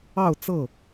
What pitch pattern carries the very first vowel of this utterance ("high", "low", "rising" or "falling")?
falling